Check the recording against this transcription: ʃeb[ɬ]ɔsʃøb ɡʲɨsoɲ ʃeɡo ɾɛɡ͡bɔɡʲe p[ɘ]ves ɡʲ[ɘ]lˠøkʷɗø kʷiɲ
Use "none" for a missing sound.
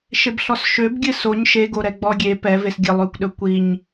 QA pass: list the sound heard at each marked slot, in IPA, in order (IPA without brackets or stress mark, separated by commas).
ɬ, ɛ, ɘ